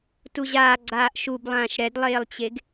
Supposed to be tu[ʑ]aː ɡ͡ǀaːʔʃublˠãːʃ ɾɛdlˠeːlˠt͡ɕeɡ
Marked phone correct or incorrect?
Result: correct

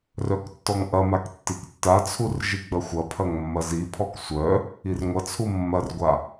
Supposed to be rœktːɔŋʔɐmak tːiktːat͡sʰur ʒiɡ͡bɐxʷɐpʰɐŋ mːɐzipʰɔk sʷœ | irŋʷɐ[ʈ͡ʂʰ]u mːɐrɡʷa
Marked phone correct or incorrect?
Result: incorrect: t͡sʰ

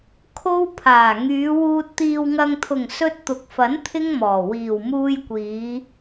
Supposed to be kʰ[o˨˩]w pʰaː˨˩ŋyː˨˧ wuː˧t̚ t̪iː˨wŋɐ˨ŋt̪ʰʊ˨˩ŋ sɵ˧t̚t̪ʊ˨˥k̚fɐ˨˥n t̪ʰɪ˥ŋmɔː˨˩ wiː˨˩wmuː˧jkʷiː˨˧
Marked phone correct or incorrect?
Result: incorrect: o˥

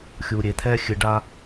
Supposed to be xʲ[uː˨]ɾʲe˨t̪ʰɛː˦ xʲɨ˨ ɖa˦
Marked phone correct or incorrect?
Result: correct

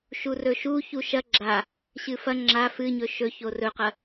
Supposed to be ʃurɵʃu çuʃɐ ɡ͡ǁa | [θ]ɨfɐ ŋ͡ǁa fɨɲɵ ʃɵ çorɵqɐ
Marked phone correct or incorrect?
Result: incorrect: ɕ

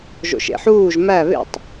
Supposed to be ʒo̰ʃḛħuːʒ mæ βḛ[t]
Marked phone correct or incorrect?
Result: incorrect: tˤ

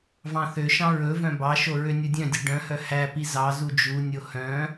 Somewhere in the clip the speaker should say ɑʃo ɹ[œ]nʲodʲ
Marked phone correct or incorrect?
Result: incorrect: ø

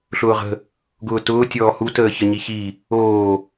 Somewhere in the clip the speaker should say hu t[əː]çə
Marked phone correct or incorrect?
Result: correct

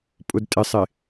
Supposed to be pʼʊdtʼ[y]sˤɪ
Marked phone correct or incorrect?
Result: incorrect: ɪ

